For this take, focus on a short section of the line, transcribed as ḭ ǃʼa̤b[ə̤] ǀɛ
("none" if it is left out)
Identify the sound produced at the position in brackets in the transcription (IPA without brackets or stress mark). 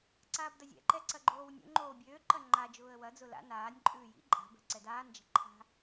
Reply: ɛ̤